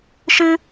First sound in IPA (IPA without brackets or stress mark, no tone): ʃ